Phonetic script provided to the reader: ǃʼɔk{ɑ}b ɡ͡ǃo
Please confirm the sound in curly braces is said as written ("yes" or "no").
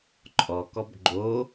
no